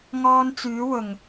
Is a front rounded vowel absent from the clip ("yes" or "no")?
no